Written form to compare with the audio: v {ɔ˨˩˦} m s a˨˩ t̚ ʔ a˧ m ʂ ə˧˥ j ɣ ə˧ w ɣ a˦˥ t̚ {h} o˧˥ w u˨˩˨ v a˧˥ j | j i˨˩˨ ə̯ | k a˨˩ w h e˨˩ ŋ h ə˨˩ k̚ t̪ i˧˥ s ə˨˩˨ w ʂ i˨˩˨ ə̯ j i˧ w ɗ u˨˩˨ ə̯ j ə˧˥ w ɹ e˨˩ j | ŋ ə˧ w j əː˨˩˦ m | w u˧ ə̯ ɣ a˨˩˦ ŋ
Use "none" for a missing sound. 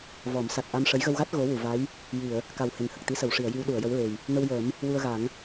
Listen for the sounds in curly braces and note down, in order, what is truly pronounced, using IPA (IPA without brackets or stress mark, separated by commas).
ɔ˨˩˦, ɣ